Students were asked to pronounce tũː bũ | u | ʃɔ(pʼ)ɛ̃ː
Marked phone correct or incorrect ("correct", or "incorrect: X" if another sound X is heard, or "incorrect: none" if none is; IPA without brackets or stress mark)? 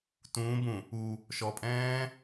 correct